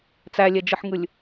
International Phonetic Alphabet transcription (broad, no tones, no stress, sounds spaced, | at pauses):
t͡s æ lʲ ɛ d͡ʒ ɯ ħ ŋ ɯ lʲ